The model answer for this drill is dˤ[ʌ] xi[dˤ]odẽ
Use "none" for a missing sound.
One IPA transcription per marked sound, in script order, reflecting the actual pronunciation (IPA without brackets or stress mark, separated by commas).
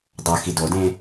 ʌ, d